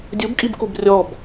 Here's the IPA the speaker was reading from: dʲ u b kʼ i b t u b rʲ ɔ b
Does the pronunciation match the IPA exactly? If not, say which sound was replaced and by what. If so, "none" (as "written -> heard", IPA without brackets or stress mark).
t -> k